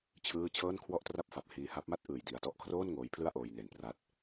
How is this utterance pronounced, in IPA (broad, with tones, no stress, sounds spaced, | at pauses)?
t͡ɕʰ ɯː˥˩ t͡ɕʰ ɤː˥˩ n kʰ w ɔ˥˩ ʔ t r a˥˩ p̚ f a˨˩ p̚ h iː˧ h a˦˥ p̚ m a˥˩ t̚ ʔ ɯː˨˩ j d i˨˩ a̯ t ɔ˥˩ ʔ kʰ r oː˥˩ n ŋ oː˦˥ j pʰ l ɯ˥˩ a̯ ʔ oː˧ j n e˨˩ n p r aː˦˥ t̚